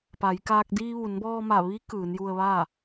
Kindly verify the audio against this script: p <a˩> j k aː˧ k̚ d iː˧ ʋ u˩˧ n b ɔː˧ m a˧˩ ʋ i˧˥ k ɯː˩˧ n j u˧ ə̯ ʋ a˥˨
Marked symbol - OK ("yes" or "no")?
no